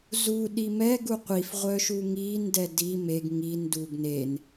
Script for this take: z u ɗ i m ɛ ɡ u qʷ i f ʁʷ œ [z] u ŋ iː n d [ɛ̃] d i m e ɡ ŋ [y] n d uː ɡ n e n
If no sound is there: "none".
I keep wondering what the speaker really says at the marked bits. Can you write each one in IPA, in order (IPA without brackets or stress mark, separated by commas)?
ʃ, ɛ, i